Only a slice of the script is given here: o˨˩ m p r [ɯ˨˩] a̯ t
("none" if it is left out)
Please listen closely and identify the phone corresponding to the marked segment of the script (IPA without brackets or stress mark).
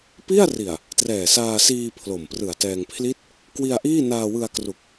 ɯ˨˩